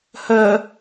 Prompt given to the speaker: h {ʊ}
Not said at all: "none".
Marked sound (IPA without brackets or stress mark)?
ə